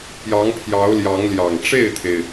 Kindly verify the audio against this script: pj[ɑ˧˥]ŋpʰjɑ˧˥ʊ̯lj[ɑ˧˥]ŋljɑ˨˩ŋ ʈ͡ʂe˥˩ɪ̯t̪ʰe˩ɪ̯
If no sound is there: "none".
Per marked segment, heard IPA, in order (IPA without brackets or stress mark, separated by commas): ɑ˧˥, ɑ˧˥